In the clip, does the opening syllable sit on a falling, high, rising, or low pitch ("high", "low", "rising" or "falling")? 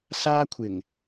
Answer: high